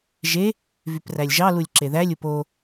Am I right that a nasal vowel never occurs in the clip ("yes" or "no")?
yes